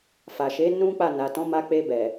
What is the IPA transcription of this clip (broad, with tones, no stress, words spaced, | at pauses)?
fa˨ʃe˨˦ nũ˦k͡pa˦˨na˨ tɔ̃˨˦ma˧k͡pe˧bɛ˨